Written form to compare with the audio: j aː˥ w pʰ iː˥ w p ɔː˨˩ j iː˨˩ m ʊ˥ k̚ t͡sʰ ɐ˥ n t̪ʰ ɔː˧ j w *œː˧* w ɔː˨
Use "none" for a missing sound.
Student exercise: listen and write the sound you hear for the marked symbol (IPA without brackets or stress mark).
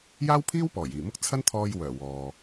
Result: œː˨˩